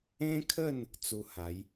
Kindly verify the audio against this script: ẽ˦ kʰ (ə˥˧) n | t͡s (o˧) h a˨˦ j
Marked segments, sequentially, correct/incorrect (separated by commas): correct, incorrect